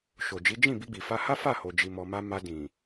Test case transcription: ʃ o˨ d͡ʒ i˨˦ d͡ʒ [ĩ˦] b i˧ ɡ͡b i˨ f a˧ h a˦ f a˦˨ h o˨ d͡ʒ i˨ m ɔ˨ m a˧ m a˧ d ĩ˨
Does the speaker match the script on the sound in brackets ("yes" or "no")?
no